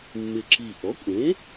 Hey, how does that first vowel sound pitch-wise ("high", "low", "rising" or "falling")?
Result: low